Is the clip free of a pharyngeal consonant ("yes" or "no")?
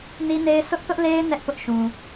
yes